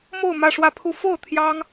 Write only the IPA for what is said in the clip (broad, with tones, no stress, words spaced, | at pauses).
mo˥˧ʊ̯ mä˥˧ʂwä˥˧pʰu˥˧ fo˥˩ʊ̯ t̪ʰjɑ˥ŋ